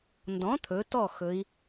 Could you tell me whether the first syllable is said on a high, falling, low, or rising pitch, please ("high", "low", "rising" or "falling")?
rising